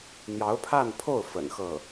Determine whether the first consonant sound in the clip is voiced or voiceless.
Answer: voiced